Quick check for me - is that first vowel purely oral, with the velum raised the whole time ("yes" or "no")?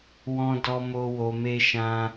no